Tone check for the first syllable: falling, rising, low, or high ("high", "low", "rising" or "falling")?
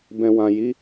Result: low